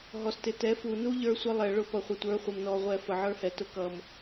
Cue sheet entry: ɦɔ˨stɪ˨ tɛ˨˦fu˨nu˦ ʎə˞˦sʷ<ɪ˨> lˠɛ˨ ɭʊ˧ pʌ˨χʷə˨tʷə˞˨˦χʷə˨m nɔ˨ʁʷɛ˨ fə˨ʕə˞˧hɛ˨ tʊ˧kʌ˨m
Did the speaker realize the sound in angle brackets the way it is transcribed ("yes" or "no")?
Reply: no